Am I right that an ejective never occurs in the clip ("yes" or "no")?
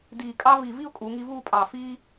no